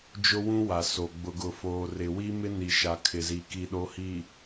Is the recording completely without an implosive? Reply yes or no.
no